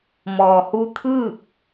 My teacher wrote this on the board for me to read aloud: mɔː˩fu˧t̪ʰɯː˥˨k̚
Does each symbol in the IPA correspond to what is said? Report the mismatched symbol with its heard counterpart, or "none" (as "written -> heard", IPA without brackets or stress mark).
f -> h